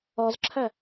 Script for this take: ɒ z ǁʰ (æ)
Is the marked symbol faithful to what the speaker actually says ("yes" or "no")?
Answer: yes